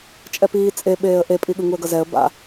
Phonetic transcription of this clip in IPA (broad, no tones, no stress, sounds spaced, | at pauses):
t͡ʃʼ ɛ p iː t͡sʼ e ɓ eː ə̯ ʔ e pʼ i ɠ ɯ ŋ u ə̯ ɡ ʌ z ɛ ə̯ b a̰